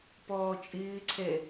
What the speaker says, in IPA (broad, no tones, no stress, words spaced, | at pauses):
pɔːt͡ʃʼɪːǀʰɛ